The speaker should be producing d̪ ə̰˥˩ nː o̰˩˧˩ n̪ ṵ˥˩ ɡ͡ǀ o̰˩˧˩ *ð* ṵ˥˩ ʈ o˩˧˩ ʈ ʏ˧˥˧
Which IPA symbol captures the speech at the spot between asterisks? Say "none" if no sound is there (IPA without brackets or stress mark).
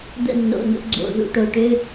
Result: ð